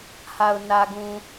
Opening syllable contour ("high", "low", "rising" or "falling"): low